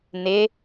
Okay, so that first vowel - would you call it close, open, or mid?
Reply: close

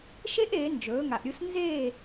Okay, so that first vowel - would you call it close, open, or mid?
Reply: mid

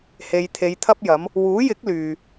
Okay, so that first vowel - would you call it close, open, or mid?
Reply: mid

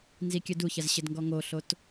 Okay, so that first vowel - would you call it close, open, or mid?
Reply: close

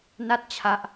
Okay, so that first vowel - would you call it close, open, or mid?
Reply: open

